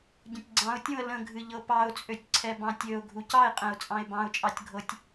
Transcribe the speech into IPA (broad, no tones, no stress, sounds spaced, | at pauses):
ɟ ə̃ tʲ ɡ͡ǀ ɑ̃ ʊ̯ tʲ ũ ə̯ l ə̃ ɡʱ ɨ ʎ ɤ p ɑ ʊ̯ t͡sʼ ø tʲ ǀʰ ɛ b ɑ̃ tʲ ø ʊ̯ ɡʱ u c ɑ ɪ̯ qʼ ɛ̃ ʊ̯ t͡sʼ ɑ̃ ɪ̯ b ɑ̃ ʊ̯ t͡ʃʼ ɑ tʲ ɡʱ ɤ tʲ